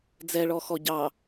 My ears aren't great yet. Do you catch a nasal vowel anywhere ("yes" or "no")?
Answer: no